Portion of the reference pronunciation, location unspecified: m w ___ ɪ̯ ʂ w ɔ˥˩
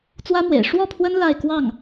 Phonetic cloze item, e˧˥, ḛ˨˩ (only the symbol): ḛ˨˩